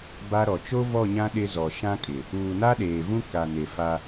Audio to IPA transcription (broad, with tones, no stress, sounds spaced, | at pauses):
b a˦ ɾ ɔ˨ t͡ʃ o˦ v ɔ˦˨ ɲ ã˦ ɗ ɪ˦ z ɔ˨ ʃ ã˦ kʼ ɪ˨ | uː˨ n a˦ ɗ eː˨ v ũ˦ k a˨ n e˨ f a˦